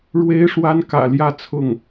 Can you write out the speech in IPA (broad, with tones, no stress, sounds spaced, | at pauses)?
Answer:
ɻ w e˥ ɪ̯ ʂ w a˥ n k ä̰˨˩ l j ä˥˧ t͡sʰ ʊ˥˩ ŋ